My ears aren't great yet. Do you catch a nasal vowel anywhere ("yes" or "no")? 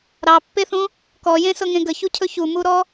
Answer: yes